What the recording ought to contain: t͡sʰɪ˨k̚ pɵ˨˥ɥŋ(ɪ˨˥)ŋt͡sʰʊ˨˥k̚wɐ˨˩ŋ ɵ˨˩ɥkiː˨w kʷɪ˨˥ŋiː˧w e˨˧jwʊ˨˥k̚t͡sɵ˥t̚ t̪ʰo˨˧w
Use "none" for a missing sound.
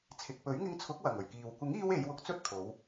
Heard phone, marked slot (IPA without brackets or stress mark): ɪ˧